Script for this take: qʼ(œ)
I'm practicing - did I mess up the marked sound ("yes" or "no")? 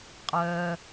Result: no